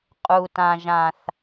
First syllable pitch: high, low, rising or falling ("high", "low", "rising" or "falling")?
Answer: low